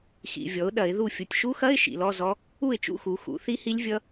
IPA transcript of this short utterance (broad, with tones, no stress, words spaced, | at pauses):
xḭ˨vʲɔ˩˥ʊ̯ɗɐ˨˩˦ɪ̯ðu˥˩ fʲu˨tʲʃu˦˥xɐ˧˥˧ɪ̯ ʃḭ˨lɔ˧˥˧zɔ˦˥ | u˥˩ɪ̯t͡ʃṵ˥˩xu˨˩˦ xṵ˩˥θi˦˥hi˦˥lʲvʲʌ˦˥